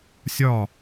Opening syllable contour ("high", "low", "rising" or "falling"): falling